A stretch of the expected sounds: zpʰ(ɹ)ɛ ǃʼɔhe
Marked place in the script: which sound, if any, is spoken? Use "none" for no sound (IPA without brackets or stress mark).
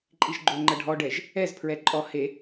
ɹ